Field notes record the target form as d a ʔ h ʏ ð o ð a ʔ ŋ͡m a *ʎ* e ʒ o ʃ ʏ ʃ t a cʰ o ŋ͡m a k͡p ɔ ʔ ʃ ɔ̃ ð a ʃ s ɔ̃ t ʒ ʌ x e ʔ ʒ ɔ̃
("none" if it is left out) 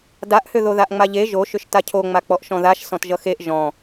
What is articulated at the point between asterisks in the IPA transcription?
ʎ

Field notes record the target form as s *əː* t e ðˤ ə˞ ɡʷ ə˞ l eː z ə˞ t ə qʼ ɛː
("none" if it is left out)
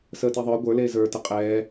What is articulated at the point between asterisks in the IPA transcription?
əː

